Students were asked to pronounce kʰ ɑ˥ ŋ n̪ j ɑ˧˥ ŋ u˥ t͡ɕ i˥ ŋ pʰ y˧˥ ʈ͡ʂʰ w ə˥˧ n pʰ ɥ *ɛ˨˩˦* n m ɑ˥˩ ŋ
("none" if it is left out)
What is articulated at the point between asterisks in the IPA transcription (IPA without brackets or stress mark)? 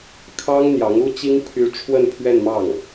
ɛ˥˧